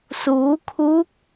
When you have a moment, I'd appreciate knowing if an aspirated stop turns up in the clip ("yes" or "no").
yes